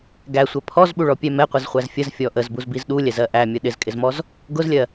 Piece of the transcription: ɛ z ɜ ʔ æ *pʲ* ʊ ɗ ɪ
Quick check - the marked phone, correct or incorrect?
incorrect